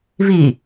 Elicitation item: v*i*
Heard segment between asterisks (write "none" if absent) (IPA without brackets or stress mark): i